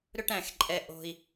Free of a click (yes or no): no